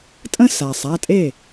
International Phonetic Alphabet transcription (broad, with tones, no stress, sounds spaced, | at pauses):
tʼ ə̃˥ s a˩ sˤ a˩˧˩ tʼ e˥˩